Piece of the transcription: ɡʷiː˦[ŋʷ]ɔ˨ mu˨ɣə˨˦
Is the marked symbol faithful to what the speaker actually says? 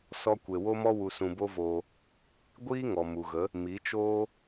no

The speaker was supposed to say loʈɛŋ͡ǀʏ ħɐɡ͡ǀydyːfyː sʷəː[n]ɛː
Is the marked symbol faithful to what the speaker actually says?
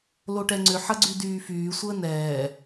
yes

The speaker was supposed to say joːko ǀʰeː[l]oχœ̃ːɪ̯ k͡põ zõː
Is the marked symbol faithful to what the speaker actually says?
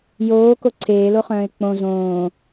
yes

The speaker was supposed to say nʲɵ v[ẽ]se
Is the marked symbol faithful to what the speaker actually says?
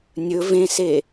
yes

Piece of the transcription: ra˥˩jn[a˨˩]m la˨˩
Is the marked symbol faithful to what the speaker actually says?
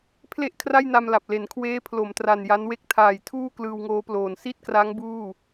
no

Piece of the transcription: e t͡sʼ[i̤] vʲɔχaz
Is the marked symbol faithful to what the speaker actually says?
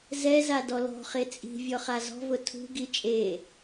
yes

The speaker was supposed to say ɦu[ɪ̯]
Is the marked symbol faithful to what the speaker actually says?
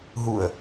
no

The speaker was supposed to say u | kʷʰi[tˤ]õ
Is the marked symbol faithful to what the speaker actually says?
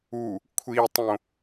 yes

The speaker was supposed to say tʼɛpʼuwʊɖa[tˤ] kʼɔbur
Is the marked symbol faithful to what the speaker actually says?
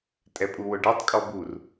yes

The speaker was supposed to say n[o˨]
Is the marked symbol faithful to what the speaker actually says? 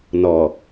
no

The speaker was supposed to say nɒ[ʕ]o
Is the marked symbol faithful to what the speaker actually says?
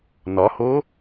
no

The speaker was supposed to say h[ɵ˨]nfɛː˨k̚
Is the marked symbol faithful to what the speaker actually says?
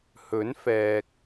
no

